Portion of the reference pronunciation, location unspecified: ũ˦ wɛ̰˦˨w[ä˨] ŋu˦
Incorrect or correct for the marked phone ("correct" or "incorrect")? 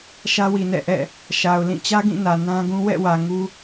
correct